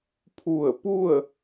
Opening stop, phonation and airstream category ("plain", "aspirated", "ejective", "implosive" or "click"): aspirated